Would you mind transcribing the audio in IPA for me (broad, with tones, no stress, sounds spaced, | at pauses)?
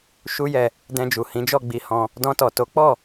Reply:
ʃ u˦ j ɛ˧ | d ɛ̃˧ d͡ʒ u˨ h ĩ˨˦ d͡ʒ ɔ˦˨ ɡ͡b i˧ h ɔ̃˧ | d ɔ̃˧ t ɔ˨ t o˨˦ k͡p ɔ˦˨